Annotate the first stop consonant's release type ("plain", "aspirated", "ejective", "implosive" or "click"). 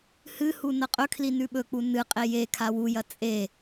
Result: ejective